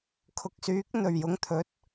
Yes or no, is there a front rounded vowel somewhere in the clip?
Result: yes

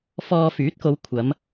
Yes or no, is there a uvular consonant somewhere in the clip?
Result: no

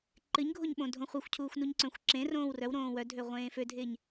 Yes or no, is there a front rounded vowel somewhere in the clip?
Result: yes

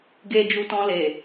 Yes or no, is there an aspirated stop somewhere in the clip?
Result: no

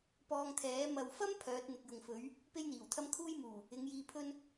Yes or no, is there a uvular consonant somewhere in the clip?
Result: no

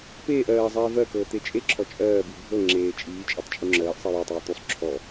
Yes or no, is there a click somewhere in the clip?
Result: yes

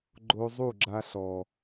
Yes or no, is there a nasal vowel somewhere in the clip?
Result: no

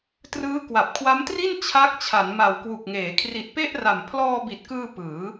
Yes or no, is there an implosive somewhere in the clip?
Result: no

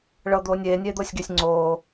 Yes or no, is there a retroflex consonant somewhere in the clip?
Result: yes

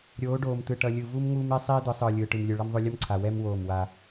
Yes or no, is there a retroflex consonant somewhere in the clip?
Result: yes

